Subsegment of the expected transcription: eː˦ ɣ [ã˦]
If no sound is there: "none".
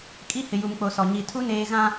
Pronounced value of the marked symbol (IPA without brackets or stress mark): ã˦